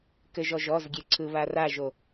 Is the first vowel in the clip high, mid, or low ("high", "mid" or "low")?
mid